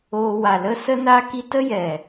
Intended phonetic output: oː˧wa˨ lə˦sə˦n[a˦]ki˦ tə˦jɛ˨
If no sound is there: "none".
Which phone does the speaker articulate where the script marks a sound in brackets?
a˦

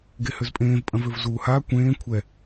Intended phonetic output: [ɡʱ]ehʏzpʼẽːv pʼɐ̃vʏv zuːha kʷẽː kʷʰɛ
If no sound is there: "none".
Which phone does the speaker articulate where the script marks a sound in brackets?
ɡ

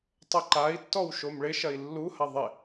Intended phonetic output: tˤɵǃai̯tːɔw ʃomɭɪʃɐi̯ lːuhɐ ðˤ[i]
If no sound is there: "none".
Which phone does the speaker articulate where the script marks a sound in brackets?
ɪ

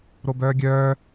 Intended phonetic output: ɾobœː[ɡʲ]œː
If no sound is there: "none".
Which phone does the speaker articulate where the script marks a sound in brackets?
ɡʲ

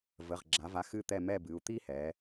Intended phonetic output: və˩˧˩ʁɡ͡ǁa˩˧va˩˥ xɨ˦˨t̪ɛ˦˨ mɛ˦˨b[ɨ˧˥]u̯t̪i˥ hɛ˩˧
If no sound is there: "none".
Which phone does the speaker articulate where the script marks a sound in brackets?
ɨ˩˧˩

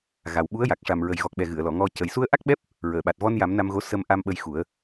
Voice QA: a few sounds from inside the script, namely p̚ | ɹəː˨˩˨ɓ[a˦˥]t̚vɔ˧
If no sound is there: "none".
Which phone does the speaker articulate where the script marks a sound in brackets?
a˨˩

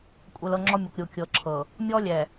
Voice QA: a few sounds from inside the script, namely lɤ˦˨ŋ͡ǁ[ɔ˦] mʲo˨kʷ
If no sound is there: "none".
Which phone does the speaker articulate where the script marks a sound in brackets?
ɔ˦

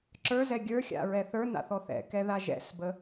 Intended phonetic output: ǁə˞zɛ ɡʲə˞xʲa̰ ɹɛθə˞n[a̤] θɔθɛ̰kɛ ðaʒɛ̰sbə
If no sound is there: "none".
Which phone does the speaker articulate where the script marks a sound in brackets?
a̰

